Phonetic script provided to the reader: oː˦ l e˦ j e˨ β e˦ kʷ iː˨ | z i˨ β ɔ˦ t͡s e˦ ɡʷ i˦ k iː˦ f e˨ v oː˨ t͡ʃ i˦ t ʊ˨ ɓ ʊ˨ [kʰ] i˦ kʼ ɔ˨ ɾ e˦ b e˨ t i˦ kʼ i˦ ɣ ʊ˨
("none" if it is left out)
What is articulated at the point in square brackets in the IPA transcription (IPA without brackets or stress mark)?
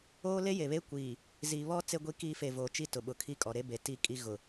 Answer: kʰ